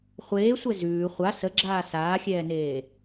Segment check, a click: present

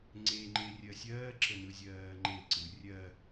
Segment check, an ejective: absent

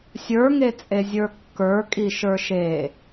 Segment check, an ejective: present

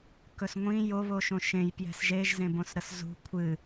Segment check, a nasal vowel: present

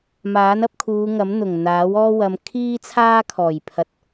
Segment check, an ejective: absent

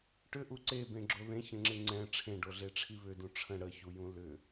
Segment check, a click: present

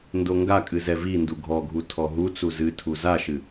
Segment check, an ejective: present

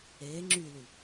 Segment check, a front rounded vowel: present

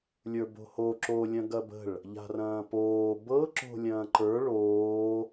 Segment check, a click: present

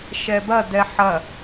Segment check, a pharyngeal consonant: present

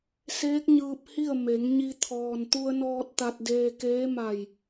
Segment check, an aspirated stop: present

